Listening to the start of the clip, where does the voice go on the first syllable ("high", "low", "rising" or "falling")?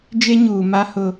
high